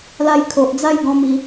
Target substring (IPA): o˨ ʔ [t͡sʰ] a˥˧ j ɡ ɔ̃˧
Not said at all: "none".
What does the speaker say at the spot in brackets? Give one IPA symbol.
d͡z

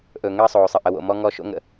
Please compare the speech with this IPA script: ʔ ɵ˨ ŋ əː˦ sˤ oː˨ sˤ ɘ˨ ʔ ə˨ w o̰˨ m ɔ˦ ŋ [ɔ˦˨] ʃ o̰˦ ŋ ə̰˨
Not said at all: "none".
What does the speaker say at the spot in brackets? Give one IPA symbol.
ɔ˦˨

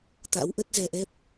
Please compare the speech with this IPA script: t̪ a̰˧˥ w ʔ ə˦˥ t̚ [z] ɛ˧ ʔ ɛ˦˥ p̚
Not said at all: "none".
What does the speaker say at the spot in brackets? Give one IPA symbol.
z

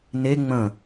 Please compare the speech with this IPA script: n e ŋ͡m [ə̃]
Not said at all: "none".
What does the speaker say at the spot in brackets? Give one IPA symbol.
ə̃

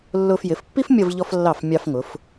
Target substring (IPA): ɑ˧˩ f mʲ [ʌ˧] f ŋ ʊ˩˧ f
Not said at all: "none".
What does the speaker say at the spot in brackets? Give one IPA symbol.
ɑ˧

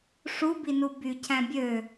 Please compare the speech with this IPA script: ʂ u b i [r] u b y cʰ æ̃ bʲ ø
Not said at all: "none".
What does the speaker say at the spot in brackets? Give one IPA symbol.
n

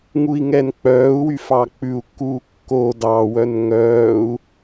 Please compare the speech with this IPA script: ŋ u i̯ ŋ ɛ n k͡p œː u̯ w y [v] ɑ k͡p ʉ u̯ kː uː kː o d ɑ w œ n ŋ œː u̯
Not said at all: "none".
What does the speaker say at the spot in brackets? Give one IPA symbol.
f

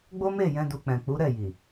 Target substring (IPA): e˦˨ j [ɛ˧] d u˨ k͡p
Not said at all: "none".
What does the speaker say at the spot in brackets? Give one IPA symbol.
ɛ̃˧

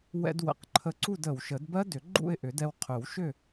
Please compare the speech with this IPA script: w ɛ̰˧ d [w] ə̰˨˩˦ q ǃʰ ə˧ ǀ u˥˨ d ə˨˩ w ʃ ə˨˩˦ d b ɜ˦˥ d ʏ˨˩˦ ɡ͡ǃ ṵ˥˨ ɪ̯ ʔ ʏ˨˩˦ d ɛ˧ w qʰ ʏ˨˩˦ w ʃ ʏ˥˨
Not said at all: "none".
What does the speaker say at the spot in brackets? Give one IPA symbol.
w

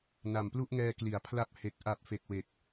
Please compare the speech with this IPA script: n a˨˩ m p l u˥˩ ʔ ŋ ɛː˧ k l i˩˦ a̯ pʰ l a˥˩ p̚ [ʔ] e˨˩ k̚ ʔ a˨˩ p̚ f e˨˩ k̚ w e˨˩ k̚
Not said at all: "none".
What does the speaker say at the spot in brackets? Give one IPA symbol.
h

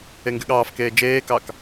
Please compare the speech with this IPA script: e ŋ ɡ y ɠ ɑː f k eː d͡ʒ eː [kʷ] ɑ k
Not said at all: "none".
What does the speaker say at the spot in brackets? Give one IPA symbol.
k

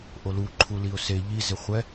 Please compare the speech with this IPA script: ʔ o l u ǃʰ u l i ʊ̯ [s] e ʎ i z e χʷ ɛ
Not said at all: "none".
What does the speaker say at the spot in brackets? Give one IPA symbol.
s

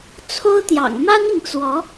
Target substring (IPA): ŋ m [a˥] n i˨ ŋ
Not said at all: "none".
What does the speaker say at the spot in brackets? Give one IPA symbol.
a˥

